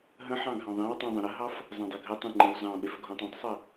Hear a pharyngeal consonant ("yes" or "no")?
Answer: yes